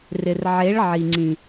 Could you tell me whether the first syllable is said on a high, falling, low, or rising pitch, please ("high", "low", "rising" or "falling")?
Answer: low